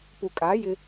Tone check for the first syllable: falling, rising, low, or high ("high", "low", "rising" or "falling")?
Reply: low